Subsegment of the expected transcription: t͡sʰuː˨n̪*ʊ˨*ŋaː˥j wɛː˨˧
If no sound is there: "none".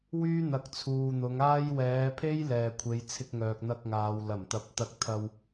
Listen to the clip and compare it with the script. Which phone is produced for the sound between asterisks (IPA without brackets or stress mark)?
ʊ˨˧